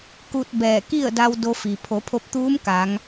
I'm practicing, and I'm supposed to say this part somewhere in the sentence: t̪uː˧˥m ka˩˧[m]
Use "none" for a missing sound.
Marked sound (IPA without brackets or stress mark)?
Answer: ŋ